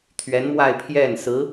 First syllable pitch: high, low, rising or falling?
rising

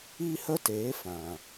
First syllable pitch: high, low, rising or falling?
high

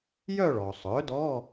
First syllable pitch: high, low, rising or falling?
falling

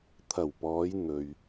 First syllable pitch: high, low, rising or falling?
low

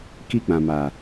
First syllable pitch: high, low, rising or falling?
high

